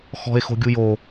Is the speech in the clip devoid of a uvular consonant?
yes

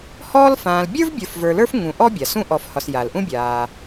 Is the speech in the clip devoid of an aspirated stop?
yes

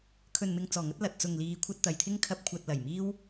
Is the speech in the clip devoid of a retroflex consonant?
yes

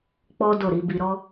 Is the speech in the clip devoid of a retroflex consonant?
yes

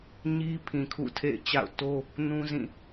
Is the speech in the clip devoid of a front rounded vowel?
yes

